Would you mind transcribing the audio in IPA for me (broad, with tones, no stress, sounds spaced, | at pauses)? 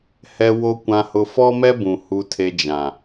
h ɛ˨ w o˨ kʷ ã˨ h ʊ˨ f ɔ˦ m ɛ˦ b ũ˨ h u˨ tʰ e˨ d͡ʒ ã˨